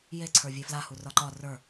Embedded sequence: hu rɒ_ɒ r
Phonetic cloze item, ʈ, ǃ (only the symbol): ǃ